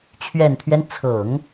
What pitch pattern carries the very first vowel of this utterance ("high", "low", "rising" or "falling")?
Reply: low